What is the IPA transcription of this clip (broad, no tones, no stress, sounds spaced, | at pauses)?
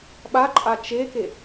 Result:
ɓ a ǃʼ a t͡ʃ e k e